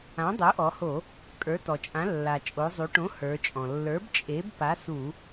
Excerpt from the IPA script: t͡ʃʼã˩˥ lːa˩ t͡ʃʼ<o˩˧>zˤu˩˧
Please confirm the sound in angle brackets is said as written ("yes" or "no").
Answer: yes